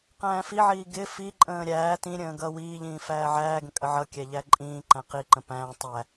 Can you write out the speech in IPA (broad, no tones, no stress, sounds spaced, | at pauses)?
q æ̃ː f i ʕ iː ɡ ɪ f i ǃʼ ə̃ː ɾʲ æː t ĩ ɾʲ ə̃ː ɡ ʌ w iː ʎ ĩː f æː ʕ æː ɡ ə̃ kʼ ə ʕ ʌ kʲ æ ʎ æ ǃʼ ĩː ǃ æ̃ q i ǃ ə̃ p æ̃ː tˤ æ